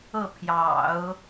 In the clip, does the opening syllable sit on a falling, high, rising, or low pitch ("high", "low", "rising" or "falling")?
falling